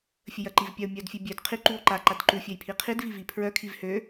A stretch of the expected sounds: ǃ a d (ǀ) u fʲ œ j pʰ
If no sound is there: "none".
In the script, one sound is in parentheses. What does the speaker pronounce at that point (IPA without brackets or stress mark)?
ǃ